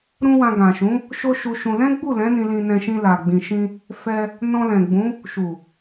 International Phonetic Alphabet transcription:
ɾũ˦wã˧ ɡã˨ʃũ˨˦ | ʃo˦ʃu˧ʃũ˧ lɛ̃˦ɡ͡bu˦˨lɛ̃˨˦ nĩ˧lĩ˧nɛ̃˧ ʃĩ˧la˨ɡ͡bĩ˨ʃĩ˧ | fɛ˧ | nɔ̃˧lɛ̃˨ɡ͡bũ˨˦ | ʃu˨

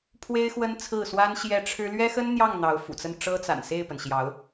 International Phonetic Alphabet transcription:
pʰwe˥ɪ̯xwə˥nt͡sʰɹ̩˥˩swa˥n ɕjɛ˥˩ʈ͡ʂʰɻ̩˥ lɥɛ˥xə˥nn̪jɑ˥˩ŋ n̪ɑ˧˥ʊ̯fṵ˨˩t͡sə˥˩n ʈ͡ʂɤ˥t͡sa̰˨˩n se˥˩ɪ̯pə˩n ɕjɑ˧˥ʊ̯

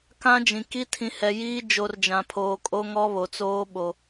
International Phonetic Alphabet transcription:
kã˦d͡ʒĩ˨ ki˦tʰĩ˨hɛ˨jiː˦ d͡ʒo˨rd͡ʒã˨pʰoː˨ kʼo˦ŋɔ˦βo˨t͡soː˦ ɓo˦

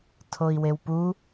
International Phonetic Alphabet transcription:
tʰoi̯wewpu

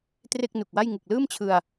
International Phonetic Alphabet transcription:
tre˥˩k̚nu˨˩k̚wa˥˩j ŋɯ˨˩k̚lɯː˥˩mt͡ɕʰɯ˧a̯

